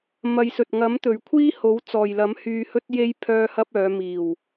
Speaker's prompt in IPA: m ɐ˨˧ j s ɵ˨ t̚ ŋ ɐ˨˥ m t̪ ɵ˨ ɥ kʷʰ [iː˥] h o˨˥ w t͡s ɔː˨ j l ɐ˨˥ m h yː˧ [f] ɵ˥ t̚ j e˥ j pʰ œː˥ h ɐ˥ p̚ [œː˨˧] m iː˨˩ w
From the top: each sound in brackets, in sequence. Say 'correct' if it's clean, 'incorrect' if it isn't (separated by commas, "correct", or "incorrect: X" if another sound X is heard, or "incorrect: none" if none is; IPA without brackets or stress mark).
correct, incorrect: h, correct